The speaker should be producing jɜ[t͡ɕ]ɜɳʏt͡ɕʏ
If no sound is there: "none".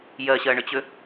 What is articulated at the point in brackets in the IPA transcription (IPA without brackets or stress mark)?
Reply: ɕ